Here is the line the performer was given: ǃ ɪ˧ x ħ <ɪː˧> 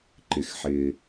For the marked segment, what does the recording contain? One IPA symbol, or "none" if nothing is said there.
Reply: ɪː˧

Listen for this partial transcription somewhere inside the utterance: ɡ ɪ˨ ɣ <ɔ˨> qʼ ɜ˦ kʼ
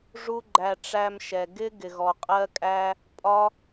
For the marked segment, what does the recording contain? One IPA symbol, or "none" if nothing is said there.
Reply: ɔ˨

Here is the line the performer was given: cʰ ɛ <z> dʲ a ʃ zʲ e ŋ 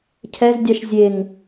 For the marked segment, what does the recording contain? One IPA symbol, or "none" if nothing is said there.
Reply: z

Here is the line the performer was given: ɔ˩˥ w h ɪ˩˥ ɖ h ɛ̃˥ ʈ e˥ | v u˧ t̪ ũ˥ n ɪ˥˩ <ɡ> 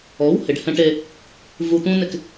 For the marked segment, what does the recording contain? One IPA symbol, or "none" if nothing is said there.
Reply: k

